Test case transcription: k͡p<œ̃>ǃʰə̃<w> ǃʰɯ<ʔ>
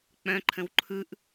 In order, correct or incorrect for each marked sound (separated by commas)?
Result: correct, correct, correct